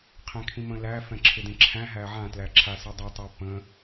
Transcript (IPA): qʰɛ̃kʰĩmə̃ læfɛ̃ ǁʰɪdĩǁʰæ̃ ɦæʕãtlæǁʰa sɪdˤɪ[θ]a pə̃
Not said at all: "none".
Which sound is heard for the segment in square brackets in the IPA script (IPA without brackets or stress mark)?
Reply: tˤ